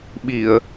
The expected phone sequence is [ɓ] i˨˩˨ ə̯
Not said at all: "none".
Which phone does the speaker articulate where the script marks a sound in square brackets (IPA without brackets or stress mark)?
ɓ